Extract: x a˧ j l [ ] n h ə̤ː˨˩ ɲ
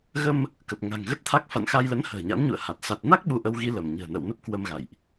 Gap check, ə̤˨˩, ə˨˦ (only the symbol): ə˨˦